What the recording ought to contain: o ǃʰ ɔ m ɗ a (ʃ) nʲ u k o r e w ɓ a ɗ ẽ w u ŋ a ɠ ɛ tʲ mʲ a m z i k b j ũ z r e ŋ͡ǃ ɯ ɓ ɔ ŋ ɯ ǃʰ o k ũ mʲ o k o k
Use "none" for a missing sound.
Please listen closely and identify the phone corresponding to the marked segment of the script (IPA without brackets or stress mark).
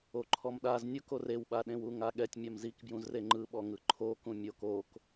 z